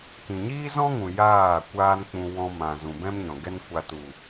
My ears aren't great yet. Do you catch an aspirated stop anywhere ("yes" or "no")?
no